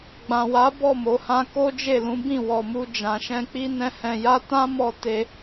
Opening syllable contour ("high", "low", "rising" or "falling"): low